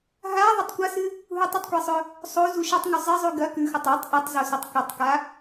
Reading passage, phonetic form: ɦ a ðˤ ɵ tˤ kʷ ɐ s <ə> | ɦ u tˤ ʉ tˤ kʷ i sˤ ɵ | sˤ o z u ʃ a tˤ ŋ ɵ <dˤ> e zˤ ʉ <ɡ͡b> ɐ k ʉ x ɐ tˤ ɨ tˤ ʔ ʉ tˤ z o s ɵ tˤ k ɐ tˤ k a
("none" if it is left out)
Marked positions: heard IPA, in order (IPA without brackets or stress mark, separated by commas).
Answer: ɨ, zˤ, ɡ